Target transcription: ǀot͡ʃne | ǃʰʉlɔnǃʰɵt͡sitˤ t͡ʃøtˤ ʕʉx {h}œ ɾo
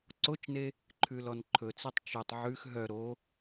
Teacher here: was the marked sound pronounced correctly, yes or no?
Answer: no